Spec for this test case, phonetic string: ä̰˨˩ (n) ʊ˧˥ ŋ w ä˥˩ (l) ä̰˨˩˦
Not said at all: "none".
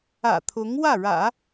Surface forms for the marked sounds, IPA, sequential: t̪ʰ, ɻ

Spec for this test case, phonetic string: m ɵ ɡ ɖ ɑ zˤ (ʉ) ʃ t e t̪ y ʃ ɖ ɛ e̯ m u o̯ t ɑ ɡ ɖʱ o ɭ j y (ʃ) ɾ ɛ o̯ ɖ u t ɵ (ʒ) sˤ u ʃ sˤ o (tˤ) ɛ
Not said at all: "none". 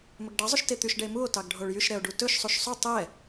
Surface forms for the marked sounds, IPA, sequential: ʉ, ʃ, ʃ, tˤ

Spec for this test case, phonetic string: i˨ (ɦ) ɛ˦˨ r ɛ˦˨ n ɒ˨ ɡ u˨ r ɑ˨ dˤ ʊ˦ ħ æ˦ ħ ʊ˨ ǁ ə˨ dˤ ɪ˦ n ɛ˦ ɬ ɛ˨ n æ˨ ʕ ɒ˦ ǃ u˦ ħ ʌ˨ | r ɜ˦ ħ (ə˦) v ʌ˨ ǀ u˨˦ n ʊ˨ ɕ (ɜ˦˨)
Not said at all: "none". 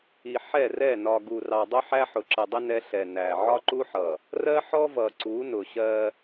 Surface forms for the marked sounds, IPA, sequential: ħ, ɔ˦, ɜ˦

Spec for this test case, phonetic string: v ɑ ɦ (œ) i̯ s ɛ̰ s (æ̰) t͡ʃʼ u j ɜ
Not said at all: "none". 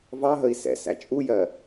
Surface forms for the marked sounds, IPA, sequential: ə, æ̰

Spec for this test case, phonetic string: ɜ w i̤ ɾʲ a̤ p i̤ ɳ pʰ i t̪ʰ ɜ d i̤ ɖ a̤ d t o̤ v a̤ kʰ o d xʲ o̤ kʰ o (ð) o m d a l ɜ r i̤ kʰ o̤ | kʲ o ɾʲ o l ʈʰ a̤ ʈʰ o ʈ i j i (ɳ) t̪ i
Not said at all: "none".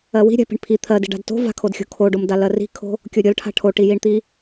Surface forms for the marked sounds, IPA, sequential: ɖ, ɳ

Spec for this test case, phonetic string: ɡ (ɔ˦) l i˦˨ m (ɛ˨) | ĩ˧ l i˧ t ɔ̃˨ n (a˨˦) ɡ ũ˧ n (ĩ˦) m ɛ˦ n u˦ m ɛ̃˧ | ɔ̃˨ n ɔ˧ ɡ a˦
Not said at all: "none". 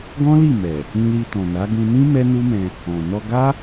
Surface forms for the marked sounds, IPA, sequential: ɔ̃˦, ɛ˨, a˨˦, ĩ˦

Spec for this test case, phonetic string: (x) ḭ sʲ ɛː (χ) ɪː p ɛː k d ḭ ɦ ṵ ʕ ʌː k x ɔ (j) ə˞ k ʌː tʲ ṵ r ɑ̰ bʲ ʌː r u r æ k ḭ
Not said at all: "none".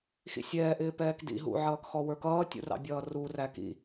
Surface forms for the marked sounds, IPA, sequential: x, ʔ, w

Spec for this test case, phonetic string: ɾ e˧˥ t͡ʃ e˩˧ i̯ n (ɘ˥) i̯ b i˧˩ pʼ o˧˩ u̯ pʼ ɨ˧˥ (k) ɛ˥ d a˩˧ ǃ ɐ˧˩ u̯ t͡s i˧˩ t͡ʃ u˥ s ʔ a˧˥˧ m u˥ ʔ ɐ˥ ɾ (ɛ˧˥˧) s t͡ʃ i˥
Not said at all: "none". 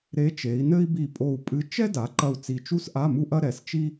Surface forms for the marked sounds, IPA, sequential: ɘ˥, t͡ʃ, ɛ˩˧

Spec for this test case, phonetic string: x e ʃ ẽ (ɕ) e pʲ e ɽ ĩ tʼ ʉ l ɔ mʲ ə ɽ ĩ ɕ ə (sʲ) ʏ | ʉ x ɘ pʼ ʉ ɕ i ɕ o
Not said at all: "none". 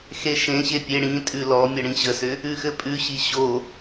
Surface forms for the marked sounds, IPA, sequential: ɕ, s

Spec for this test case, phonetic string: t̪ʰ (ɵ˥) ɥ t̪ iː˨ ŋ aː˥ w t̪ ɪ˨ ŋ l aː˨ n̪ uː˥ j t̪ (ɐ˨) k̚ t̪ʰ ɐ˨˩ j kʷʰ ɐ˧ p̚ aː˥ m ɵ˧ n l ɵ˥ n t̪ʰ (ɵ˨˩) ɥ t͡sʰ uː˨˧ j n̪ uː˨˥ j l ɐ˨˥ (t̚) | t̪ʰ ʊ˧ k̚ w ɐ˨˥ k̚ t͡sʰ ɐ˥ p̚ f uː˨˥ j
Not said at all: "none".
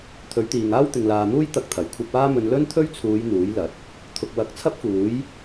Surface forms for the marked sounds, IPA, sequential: ɵ˨˥, ɐ˧, ɵ˥, t̚

